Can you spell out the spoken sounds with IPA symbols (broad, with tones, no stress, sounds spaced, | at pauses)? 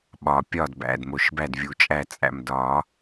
ɓ ɒ˩ pʲ ɒ˧˩ d b æ̰˩˧˩ d m o˩ ʃ b æ˧˩ d vʲ u˩ t͡ʃʼ æ˧˩ t͡sʼ æ̰˧˩ m d ɒ˨˩˦